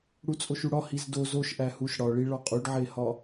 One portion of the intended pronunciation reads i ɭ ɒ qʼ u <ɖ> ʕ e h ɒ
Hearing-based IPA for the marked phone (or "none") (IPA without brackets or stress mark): ɖ